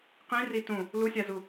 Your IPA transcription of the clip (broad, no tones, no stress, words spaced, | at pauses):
qĩri tũ | lusʲazu